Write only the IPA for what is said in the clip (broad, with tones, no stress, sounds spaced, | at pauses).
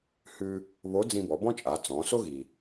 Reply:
h ʉ˧ | β o˧˥ d͡z ĩ˧ b ɔ˩˧ b ɔ̃˥ t͡ʃʼ a˩˧ t͡s ɔ̃˩˧ s o˥ ɣ i˩